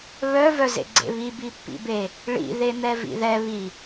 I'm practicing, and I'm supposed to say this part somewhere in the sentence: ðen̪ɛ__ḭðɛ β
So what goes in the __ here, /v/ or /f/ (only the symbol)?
v